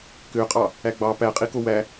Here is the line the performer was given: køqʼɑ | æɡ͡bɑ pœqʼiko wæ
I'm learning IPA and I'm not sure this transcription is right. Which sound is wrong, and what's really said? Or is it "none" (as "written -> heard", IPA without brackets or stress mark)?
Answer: œ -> æ